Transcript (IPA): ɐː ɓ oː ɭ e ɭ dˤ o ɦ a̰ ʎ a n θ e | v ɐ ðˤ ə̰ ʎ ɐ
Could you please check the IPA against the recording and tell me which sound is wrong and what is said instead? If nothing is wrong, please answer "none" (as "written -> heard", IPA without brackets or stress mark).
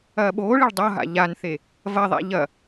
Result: ə̰ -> a̰